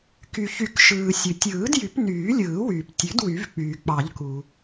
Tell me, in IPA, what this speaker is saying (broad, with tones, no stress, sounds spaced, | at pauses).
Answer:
k y˩ ç y˨˩˦ k ʃ ɯː˩ sʲ ɯ˩ tʲ ɯː˨˩˦ d j y˨˩˦ p n yː˨˩˦ lʲ ɯː˨˩˦ w yː˩ p tʲ ø˨˩˦ d w y˨˩˦ v k͡p yː˩ k͡p ɑ˨˩˦ ʎ k u˩